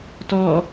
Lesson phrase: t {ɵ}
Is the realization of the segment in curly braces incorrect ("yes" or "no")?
yes